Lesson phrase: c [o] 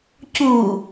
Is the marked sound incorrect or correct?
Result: incorrect